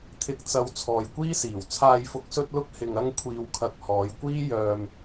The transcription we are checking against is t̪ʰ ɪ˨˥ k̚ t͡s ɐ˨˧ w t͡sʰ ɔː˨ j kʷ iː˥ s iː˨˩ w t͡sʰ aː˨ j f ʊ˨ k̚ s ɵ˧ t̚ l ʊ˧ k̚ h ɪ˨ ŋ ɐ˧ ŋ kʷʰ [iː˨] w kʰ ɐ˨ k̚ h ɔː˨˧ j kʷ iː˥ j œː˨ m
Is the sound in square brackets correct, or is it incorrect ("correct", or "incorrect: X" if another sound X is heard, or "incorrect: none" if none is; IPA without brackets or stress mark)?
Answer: correct